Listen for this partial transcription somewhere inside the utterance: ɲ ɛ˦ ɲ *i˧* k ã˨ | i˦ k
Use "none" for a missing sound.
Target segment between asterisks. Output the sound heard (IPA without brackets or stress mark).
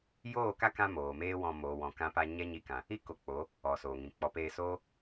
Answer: i˧